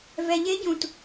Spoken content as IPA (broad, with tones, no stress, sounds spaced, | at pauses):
v ɛ˨ ʎ e˧˥ ɟ ũ˨ t